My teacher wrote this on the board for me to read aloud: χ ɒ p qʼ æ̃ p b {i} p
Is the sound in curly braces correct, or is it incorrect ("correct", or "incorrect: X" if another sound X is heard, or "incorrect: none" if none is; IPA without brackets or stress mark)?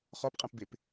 incorrect: e